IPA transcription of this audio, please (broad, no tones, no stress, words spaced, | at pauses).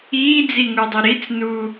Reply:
iːd͡ziŋudˤi ɾit͡snu